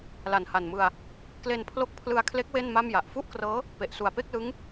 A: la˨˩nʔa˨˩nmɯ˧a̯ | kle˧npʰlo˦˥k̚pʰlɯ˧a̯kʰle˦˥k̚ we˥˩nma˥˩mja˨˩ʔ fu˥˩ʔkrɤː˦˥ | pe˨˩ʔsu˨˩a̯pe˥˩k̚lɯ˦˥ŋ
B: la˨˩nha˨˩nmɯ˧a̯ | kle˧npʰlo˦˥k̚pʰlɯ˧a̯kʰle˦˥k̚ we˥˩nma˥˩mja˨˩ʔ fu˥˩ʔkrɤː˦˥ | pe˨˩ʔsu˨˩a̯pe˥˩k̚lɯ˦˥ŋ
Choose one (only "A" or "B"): B